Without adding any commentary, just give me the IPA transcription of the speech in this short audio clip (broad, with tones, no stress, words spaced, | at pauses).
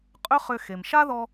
qʼʏ˥χʏ˧ xe˩mʃa˥ ðɔ˥